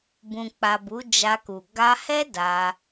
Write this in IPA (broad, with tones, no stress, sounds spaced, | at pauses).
b ũ˨ k͡p a˨ b u˨˦ d͡ʒ a˧ k u˨ ɡ a˧ h ɛ˦ d a˧